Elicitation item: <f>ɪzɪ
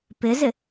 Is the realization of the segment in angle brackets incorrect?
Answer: yes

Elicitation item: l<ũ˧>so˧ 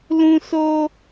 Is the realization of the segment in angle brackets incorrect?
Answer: no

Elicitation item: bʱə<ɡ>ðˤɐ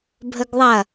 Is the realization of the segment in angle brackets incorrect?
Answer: no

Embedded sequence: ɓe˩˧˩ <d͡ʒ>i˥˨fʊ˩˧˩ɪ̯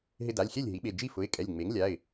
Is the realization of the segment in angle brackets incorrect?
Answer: no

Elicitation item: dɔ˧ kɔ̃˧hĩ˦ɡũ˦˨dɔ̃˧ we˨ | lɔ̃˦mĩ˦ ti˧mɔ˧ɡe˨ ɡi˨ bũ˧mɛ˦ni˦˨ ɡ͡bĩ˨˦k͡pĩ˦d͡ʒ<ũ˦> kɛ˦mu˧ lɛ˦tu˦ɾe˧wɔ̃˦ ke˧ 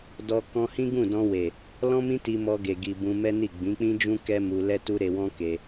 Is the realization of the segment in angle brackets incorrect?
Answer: no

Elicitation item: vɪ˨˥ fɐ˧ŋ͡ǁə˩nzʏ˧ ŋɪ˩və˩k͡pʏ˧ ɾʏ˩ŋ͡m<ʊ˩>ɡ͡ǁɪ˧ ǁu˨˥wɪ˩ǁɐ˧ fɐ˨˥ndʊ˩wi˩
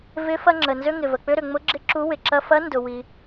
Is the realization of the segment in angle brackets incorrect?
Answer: yes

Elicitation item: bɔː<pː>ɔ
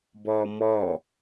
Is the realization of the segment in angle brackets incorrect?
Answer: yes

